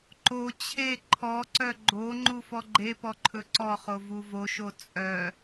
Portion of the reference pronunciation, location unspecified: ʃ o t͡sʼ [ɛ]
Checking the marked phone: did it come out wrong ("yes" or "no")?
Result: yes